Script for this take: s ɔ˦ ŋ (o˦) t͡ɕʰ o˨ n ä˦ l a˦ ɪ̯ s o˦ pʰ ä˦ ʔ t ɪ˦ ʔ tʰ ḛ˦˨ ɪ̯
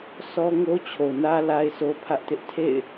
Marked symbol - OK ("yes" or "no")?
yes